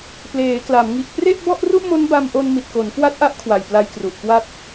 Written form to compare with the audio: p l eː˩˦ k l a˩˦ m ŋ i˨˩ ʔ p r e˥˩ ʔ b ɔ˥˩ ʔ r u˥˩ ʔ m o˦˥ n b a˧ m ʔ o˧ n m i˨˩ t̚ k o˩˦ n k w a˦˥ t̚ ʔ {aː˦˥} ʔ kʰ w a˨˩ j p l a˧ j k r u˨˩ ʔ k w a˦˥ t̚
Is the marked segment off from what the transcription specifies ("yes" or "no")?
yes